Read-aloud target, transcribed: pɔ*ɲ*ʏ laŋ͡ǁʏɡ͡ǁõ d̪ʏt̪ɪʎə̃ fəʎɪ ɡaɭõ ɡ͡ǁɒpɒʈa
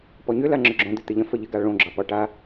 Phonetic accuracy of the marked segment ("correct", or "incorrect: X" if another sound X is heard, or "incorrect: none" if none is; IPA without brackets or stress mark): correct